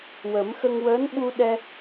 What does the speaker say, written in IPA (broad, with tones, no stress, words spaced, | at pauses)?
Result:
wə˨˩˦mxə˧ŋ wəː˧˥n ɓu˧ ɗɛ˧